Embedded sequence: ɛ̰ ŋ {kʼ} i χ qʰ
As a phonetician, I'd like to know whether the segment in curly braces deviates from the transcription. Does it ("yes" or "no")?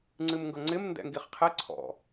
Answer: yes